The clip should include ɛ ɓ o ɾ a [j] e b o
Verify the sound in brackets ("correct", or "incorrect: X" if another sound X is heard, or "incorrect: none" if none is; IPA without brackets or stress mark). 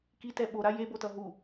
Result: correct